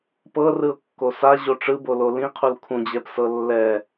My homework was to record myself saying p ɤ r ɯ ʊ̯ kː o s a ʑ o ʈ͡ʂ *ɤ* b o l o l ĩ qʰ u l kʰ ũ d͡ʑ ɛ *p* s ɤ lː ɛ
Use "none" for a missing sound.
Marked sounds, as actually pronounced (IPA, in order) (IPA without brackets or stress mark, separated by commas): ɯ, p